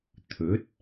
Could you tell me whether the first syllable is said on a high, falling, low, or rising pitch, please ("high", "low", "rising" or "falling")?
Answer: rising